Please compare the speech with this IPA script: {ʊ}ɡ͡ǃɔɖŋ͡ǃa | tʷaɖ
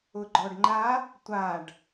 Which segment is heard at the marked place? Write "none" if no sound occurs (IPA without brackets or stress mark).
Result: ʊ